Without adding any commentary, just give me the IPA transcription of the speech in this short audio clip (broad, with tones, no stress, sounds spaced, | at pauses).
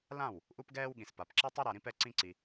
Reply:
l ã˦˨ w | ʔ u˦ p ɡ ɛː˦ w ɠ ĩ˨ s p a˨ p ǁ ɛ˦ tˤ ɯ˦ ɾ a˧ ɾ ĩ˦ p ɛ˦ ǀ ĩ˦ ǀ i˧